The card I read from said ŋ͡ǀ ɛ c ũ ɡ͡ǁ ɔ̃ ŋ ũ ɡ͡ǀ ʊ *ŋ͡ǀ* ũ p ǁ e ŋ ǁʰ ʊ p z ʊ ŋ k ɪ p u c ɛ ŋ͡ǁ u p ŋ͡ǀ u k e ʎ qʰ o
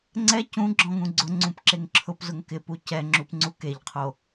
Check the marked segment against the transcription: correct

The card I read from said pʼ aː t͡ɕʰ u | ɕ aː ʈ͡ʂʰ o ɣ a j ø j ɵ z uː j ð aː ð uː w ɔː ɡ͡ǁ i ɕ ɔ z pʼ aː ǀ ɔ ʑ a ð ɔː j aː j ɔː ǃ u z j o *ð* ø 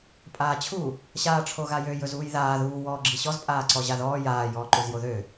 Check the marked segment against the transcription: correct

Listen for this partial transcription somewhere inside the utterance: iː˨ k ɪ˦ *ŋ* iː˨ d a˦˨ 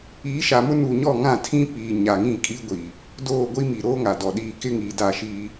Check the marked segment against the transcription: correct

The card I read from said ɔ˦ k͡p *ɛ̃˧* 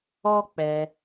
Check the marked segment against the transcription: incorrect: ɛ˧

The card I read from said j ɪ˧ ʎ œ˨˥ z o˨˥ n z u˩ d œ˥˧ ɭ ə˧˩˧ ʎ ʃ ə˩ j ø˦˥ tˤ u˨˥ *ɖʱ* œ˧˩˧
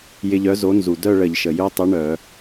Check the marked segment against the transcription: incorrect: ɳ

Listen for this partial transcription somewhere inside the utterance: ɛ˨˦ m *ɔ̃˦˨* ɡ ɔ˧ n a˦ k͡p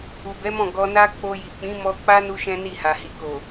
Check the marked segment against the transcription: correct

